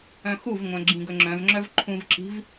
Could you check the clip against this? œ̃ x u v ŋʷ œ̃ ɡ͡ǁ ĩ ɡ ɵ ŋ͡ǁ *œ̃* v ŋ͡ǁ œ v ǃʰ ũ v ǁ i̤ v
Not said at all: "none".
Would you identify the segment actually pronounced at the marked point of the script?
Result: œ̃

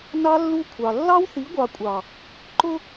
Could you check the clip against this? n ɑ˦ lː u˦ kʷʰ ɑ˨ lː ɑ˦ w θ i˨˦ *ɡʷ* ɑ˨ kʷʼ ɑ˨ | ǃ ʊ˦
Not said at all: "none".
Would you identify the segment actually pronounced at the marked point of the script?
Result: ɡʷ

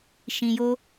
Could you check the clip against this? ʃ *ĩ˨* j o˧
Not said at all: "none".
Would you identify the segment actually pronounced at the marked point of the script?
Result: ĩ˨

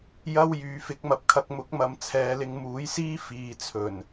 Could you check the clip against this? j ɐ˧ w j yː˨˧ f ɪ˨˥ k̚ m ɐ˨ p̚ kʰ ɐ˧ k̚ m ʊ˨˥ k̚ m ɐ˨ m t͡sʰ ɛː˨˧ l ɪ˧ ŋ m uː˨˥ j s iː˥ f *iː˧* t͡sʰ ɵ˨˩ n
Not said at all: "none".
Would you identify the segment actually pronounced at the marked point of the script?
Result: iː˨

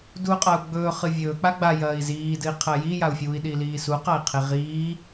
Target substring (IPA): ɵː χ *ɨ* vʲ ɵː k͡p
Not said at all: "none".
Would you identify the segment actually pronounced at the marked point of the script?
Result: ɨ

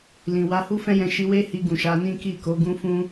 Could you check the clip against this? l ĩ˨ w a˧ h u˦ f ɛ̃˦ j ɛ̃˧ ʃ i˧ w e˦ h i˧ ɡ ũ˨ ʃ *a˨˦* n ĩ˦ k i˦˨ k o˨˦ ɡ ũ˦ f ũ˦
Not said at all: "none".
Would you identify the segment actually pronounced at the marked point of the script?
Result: a˨˦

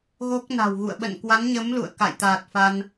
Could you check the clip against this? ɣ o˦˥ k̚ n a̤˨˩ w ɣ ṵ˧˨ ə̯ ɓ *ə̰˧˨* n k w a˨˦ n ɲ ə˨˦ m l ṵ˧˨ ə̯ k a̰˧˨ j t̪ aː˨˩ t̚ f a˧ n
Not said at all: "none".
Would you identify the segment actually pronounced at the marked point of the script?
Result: ə̰˧˨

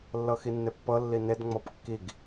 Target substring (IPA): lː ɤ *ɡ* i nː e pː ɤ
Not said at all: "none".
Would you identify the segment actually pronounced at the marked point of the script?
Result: x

